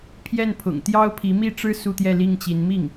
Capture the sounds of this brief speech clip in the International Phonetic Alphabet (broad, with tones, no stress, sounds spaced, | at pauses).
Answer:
pʰ j ɛ˥˩ n pʰ ʊ̰˨˩ ŋ t̪ j ɑ˥ ʊ̯ pʰ i˧˥ m i˥˩ ʈ͡ʂ ɻ̩˥ s u˥˧ t̪ j ɛ˥˧ l i˥˩ ŋ t͡ɕ i˧˥ n m i˥˩ ŋ